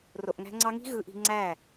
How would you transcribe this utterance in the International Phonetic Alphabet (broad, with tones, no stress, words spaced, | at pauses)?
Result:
ro˨ʔŋæ̤˧ŋ͡ǀɑ˧ŋi̤˦ ɣɯ˧ʔi̤˧ ŋ͡ǀæ˦˨